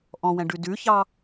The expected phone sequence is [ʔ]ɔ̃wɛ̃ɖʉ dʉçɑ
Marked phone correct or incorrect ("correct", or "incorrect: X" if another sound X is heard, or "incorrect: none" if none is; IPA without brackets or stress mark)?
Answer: correct